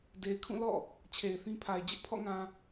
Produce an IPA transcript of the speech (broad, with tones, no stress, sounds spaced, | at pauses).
d e˨ ɪ̯ kʰ ũ˦˨ l ɔ̰˦˨ | t͡ɕʰ e˨ ɪ̯ θ ĩ˦ pʰ a˨ ɪ̯ d͡ʑ ɪ˦ ʔ pʰ ɔ̰˦˨ ŋ ã˨